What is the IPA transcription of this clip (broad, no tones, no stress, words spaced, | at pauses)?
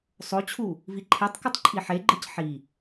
sˤot͡ɕʰu | viǃʰetˤkɯtˤ ǃʼiħeɡ͡ǃɯc ħi